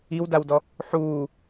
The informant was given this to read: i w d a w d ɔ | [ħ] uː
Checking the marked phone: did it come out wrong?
no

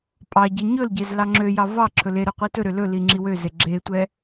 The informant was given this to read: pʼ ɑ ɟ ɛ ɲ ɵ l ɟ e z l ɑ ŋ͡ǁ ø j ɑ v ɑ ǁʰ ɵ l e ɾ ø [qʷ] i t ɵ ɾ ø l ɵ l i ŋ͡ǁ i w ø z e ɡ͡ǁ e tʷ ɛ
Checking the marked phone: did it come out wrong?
no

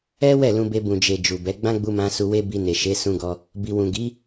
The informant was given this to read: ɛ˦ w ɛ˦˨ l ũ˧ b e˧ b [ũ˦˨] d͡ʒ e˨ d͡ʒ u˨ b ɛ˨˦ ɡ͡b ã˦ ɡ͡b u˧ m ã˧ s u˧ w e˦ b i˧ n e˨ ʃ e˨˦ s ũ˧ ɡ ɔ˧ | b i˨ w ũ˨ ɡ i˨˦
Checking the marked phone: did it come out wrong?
yes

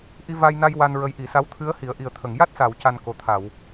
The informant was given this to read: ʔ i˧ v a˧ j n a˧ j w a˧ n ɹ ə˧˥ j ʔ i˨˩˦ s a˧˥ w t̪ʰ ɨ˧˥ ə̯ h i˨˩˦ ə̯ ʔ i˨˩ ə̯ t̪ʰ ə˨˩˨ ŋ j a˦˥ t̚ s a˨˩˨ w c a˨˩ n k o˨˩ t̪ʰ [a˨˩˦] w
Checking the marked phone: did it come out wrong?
yes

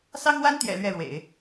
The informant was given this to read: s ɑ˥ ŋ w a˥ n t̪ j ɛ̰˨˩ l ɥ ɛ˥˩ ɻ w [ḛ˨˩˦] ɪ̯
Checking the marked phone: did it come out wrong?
no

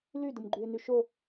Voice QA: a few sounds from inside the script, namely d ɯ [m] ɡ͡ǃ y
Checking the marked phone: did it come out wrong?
no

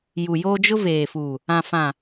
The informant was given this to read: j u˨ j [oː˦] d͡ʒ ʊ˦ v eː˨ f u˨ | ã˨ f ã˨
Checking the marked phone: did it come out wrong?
no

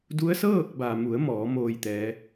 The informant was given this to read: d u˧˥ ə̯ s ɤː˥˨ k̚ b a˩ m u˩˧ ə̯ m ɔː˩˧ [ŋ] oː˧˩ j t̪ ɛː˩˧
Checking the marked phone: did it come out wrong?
yes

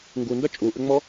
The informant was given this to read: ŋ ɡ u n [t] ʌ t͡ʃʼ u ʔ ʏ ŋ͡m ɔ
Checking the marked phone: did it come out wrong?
yes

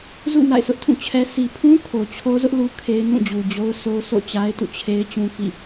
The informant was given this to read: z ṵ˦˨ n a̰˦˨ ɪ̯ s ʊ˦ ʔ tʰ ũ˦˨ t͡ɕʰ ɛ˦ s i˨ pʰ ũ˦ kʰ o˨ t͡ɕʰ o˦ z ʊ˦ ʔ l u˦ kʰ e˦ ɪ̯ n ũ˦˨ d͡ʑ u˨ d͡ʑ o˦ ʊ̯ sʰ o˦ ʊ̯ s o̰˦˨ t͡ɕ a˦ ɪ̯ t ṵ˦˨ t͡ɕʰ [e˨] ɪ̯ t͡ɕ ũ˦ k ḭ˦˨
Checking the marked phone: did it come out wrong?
yes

